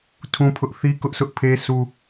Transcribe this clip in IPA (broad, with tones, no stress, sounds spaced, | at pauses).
tʰ ũ˦ pʰ ʊ˦ ʔ θ i˦ k ʊ˦ ʔ s ʊ˦ ʔ pʰ e˦ sʰ u˦